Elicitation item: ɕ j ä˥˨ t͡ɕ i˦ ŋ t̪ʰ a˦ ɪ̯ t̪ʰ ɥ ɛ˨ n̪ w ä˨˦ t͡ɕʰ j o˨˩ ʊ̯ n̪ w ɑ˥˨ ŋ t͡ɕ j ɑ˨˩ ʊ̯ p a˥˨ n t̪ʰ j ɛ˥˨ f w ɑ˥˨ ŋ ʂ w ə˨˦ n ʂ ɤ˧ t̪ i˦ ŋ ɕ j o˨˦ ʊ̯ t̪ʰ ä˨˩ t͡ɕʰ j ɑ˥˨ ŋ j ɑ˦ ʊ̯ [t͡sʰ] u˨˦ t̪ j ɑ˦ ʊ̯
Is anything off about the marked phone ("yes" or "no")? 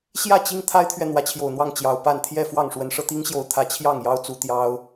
yes